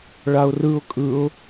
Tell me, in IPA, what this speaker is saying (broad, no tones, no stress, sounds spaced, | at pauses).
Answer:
ɭ a ʊ̯ r ɯ ʊ̯ kʼ ɯ ʊ̯